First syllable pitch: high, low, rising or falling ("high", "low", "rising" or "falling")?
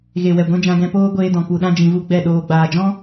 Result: low